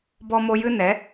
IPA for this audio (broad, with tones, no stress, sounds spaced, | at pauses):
b ɔ˦ m o˦ j ɨ˦ n ɛ˨˦